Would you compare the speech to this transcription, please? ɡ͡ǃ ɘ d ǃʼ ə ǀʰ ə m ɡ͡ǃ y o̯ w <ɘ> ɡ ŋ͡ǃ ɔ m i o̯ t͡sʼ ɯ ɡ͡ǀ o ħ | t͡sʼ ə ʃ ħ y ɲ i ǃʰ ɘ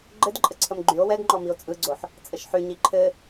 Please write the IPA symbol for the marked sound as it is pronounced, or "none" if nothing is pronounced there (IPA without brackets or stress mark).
ɛ